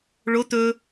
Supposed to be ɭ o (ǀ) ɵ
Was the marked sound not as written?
yes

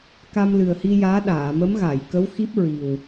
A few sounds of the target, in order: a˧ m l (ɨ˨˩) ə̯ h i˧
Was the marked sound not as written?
no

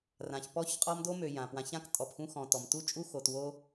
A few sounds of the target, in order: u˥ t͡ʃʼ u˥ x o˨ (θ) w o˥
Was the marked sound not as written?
yes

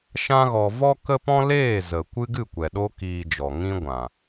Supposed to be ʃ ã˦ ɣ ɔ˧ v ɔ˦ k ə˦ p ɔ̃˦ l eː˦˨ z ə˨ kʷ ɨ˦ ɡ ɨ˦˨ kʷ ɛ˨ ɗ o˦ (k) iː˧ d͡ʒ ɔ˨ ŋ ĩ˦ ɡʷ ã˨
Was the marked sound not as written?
no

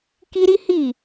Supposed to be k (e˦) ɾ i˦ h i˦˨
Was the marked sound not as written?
yes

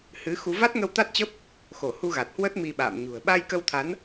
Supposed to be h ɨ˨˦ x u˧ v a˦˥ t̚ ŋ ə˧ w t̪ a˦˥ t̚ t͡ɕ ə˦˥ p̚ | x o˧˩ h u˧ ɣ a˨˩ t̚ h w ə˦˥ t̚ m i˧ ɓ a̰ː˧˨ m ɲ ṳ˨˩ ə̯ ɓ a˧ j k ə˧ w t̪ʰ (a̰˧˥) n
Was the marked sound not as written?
yes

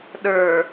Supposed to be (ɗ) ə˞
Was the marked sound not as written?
no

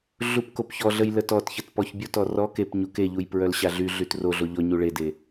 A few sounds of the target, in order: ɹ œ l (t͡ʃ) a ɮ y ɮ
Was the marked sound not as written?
yes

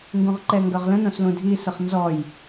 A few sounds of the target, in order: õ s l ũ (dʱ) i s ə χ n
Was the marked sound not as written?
no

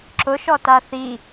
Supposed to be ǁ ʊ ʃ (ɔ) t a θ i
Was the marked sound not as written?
no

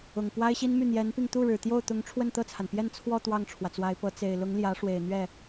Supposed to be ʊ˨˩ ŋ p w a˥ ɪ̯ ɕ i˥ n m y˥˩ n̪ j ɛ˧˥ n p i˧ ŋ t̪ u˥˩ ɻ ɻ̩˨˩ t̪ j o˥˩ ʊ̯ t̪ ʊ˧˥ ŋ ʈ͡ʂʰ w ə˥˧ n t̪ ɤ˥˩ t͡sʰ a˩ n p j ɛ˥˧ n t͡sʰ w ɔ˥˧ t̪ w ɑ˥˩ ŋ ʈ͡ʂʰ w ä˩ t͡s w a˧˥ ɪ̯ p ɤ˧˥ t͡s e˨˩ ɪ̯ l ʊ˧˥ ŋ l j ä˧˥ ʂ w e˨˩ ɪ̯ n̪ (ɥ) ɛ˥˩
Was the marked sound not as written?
no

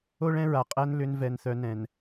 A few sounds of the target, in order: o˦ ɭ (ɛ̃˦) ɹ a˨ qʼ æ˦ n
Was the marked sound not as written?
no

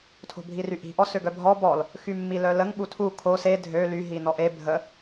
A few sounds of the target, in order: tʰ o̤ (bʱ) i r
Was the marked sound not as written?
no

